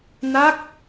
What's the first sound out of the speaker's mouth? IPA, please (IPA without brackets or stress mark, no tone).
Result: n